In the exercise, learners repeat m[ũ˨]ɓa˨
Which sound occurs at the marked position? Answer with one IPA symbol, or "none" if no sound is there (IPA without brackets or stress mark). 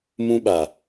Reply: ũ˦